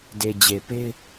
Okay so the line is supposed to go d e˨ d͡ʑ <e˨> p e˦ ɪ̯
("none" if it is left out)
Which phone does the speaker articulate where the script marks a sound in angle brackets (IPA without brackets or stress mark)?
e˨